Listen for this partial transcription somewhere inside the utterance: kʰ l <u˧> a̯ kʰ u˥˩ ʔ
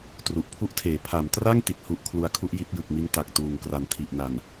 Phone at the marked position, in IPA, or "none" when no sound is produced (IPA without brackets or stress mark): u˧